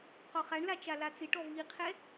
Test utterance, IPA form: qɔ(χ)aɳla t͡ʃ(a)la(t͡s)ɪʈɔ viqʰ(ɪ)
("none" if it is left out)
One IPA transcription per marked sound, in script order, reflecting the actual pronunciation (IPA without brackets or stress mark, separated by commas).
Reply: χ, a, t͡s, ɛ